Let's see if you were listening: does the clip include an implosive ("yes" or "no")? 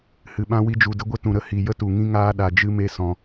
yes